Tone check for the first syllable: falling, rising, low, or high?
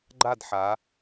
falling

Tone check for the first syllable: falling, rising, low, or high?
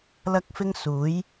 high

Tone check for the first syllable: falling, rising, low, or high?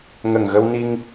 low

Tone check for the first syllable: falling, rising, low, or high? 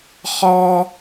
high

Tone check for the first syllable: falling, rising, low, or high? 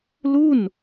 falling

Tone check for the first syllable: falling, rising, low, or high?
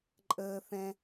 high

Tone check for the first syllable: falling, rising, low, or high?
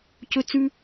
high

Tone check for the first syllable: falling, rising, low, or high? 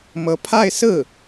rising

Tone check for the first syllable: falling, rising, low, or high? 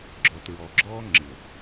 low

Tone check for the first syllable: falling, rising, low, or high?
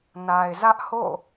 low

